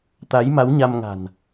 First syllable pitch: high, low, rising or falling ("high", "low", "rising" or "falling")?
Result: rising